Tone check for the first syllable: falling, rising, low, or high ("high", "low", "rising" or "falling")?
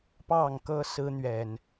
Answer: falling